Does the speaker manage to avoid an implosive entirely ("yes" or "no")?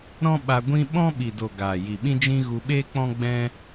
no